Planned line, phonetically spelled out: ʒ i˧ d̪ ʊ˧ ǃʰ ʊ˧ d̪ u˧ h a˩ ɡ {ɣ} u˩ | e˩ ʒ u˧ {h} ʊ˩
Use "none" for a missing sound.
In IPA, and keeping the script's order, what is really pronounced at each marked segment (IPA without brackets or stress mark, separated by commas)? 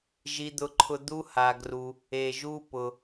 r, p